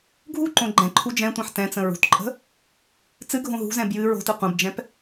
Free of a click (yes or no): no